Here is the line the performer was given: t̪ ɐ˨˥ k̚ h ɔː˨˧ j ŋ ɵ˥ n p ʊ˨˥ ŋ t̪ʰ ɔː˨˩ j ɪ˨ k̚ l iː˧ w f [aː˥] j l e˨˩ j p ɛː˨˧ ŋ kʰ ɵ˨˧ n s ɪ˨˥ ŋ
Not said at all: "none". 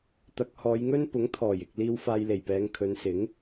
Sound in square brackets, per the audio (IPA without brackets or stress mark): aː˧